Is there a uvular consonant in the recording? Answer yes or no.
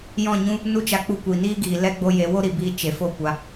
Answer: no